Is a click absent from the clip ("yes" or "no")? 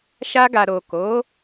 yes